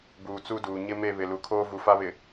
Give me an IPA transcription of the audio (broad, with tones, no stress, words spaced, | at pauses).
buː˨t͡su˦duː˨ ɲɪ˦me˦˨ βɪ˨lu˨kʰoː˦ vu˨fa˦βɪ˨